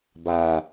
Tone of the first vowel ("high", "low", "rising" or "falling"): low